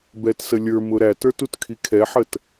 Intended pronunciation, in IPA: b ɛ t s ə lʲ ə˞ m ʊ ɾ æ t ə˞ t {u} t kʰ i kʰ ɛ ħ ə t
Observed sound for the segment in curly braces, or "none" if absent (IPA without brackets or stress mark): u